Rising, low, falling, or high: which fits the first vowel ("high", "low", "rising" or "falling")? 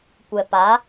low